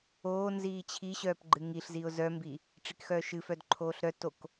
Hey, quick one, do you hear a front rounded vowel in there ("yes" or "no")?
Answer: yes